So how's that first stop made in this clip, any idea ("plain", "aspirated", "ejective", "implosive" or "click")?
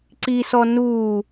click